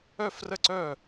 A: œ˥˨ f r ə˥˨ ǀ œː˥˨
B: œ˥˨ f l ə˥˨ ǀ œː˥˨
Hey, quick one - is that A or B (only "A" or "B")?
A